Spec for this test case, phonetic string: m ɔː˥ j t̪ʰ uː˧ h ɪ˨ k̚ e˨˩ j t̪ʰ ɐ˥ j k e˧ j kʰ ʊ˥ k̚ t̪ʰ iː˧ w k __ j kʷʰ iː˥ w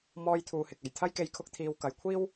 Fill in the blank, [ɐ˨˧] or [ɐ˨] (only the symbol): ɐ˨˧